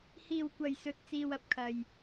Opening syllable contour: low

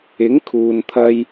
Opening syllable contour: rising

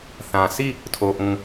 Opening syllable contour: low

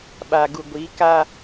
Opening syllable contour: low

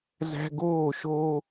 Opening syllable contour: high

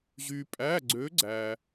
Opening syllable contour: low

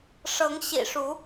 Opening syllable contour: rising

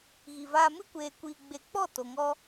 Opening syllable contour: low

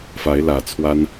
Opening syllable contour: rising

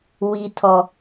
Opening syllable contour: high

